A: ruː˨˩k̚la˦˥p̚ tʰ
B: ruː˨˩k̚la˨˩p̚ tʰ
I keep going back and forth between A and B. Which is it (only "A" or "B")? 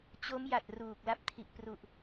A